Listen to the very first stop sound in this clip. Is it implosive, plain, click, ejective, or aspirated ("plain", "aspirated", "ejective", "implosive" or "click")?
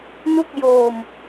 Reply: plain